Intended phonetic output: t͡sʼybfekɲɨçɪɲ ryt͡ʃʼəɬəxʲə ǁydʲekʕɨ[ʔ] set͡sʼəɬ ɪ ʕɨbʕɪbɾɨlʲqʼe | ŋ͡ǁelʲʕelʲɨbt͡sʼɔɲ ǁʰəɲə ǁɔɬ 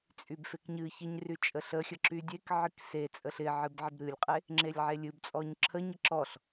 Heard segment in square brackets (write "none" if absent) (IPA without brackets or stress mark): k